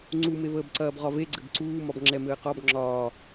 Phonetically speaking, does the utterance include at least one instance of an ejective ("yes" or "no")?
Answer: no